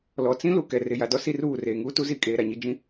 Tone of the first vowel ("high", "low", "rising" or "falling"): low